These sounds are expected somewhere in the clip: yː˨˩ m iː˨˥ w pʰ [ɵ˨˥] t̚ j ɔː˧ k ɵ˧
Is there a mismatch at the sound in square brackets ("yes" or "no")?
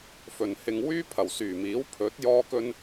no